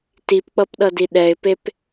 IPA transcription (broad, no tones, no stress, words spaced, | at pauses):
tipk͡pʌpɗʌdi ɗɛɪ̯pep